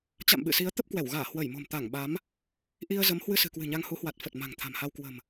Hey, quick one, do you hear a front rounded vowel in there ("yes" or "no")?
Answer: no